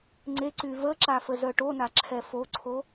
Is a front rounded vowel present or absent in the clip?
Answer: present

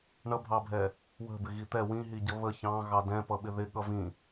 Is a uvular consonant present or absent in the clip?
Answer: absent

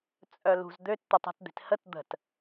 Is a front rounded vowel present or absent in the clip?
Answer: present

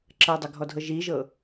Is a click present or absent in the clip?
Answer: present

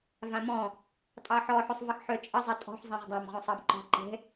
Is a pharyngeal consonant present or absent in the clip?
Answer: present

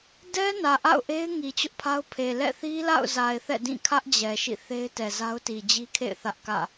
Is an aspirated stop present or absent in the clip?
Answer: present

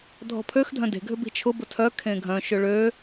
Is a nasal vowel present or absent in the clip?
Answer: present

